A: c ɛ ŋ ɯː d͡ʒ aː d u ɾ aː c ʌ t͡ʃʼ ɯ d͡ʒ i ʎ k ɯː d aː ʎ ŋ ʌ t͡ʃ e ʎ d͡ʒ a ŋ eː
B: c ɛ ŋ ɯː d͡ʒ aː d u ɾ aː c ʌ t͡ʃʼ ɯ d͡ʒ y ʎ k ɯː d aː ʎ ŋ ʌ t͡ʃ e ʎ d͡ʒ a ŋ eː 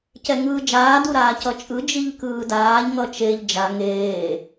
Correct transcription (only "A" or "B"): A